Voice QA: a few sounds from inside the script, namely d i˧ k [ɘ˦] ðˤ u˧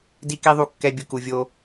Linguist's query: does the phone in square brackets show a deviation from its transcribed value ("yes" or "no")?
yes